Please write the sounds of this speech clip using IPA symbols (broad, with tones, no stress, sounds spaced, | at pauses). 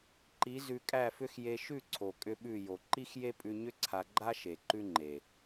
ǃ i˨˦ z ʉ˧ kʼ æ˦˨ f ʏ˦ x j e˧ ʃ ʉ˦˨ ǀʰ o˨ kʼ ʏ˦ ɓ ʉ˦˨ j o˨ ǃ i˦ x j e˦ pʼ ʉ˧ ɲ ʏ˦ ǀʰ a˧ ɡ͡ǃ a˦ ʃ e˨ ǃ ʉ˦ ŋ͡ǃ e˨